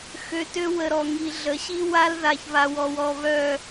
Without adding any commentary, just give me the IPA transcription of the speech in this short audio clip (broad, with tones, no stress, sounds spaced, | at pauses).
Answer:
x ø˨ t ø˦ w ə˨ ɾ ɔ˨ ŋ i˨ ɮ ə˨ ɕ i˦ w a˦ l ð a˨ ç β a˨ w ɔ˨ w ɔ˨ β œ˨